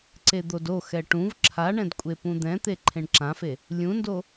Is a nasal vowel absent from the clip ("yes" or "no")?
no